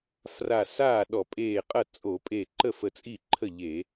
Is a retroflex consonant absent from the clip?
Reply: yes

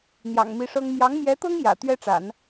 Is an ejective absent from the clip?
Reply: yes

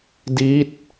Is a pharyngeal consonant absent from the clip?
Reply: yes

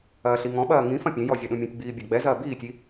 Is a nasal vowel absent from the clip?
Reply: no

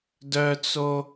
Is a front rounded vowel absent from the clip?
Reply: no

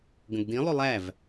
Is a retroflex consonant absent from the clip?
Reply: yes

